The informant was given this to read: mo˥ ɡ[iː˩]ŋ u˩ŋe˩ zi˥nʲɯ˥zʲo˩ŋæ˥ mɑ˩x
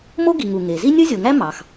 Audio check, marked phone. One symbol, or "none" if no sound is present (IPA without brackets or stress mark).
i˩